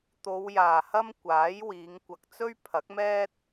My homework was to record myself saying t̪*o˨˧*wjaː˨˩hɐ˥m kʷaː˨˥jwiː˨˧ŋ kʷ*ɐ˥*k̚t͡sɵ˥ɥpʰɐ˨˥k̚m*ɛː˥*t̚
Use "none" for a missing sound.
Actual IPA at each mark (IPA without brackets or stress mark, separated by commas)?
o˨˧, ɐ˨, ɛː˥